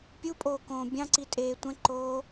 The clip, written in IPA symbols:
pʲ u pʼ oː k õː bʲ ɑ̃ ǀ i tʼ eː tʷ ɛ̃ ǃ oː

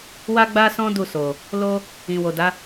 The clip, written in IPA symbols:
w a˦ ɡ͡b a˦ s ɔ̃˦ d u˦˨ s o˨ | l o˦ | ĩ˨ w o˨ d a˨˦

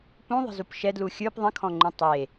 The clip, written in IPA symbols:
p ũ ðˤ ə̤ z u p ʃ ɛ d l u xʲ ə˞ p ðˤ ə̃ kʰ ɔ̃ ŋ͡ǃ ũ tˤ e

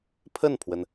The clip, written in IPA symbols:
pʰ ə˥˩ n pʰ w ə˩ n

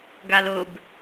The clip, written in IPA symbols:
ɡ a l ʊ b

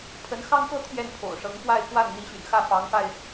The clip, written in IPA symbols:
pʰ ə˧˥ n x ɑ˥ ŋ k ɤ˥ t̪ʰ j ɛ˥˩ n pʰ o̰˨˩ ʊ̯ ʂ ɤ˧˥ ŋ f w a˥˧ ɪ̯ k w a˥˩ n n̪ i˧˥ ɕ y̰˨˩ n x ä˥˩ f ɑ˧˥ ŋ f a˧ ɪ̯

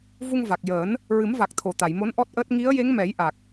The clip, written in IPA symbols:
v u˧ ŋ v a˨˩ k̚ j əː˨˩˦ n | ɹ ɨ˨˩˦ m v a˨˩ k̚ t̪ʰ o˨˩˨ t̪ a˨˩˨ j m o˧˥ n ʔ ɔ˦˥ t̚ ʔ əː˦˥ t̚ ŋ i˧˥ ə̯ j e˧˥ ŋ m ɛ˨˩˦ j ʔ a˨˩ k̚

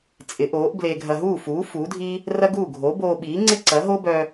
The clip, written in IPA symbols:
t͡sʼ ɪ˩˥ ʔ oː˩˥ ʔ b l e˧ ɡʱ ɐ˧ ɦ uː˥˩ f uː˩˥ f uː˩˥ dʱ i˥ | r ɐ˥ ɡ uː˥˩ ɡʱ o˩˥ b oː˧ ɓ iː˩˥ ŋ͡ǀ ɪ˥ ǀ ɐ˩˥ ɦ o˥ b œ˧

